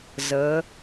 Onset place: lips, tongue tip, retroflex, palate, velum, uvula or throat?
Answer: tongue tip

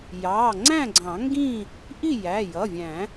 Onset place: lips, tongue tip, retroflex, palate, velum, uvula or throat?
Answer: palate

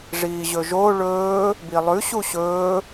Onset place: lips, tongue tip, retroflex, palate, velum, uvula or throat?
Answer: retroflex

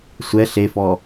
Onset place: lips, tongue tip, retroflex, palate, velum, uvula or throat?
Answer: tongue tip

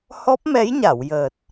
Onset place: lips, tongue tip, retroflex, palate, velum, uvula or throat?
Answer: throat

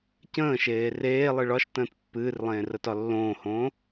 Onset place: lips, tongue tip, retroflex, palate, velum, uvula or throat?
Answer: palate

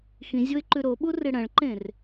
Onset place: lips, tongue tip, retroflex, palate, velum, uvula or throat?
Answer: velum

